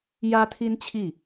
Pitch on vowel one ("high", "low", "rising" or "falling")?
high